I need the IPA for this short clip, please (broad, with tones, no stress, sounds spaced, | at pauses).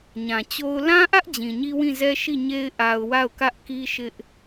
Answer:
ɲ ã˨ t͡ɕ o˦ ʊ̯ l ã˦ ʔ ä˦ ʔ d͡ʑ ĩ˨ ɲ i˦ w ĩ˦˨ z ɛ˦ ʃ i˦˨ ɲ e˦ ɪ̯ ʔ a˨ ʊ̯ w a˦˨ ʊ̯ k ä˦ ʔ k i˦ ʃ ɪ˦ ʔ